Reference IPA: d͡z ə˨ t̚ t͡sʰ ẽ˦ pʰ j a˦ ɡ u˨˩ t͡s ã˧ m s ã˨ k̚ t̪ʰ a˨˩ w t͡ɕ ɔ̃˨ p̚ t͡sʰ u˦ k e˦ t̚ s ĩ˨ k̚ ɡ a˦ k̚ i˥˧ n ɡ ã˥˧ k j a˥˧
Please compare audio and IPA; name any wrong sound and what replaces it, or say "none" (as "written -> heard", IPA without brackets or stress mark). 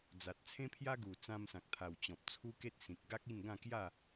ə˨ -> a˨